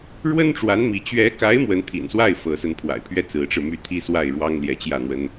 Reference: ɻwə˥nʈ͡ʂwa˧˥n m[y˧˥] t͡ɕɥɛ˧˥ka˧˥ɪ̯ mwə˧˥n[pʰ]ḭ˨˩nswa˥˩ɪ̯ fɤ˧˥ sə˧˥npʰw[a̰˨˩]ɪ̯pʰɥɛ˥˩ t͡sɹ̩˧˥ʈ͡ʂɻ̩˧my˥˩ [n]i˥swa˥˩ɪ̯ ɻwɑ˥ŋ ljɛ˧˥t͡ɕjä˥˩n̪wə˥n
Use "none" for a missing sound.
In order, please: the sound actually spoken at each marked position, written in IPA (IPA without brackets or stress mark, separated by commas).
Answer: i˧˥, t̪ʰ, a̰˨˩, t̪ʰ